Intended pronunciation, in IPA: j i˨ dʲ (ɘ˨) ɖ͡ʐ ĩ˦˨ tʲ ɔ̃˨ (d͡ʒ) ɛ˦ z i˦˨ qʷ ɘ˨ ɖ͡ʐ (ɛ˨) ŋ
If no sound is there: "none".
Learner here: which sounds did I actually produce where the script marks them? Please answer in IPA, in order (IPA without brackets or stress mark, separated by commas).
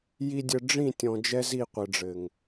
ɘ˨, d͡ʒ, ɘ˨